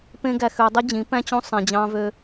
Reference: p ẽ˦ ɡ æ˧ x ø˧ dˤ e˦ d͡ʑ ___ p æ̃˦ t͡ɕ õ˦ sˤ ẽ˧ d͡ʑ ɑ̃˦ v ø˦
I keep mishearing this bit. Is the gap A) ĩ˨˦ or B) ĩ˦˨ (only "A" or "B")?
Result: A